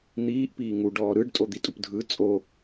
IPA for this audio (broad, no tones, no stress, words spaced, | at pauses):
n̪iːʔ piːŋu ɖɔːɾɯɖ tʼod̪itʼupdʱɯ t͡sʼo